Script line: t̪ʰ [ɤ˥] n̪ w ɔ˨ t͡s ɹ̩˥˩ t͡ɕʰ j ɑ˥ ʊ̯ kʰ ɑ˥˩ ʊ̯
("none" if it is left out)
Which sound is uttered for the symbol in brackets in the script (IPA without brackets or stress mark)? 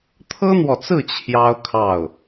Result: ɤ˥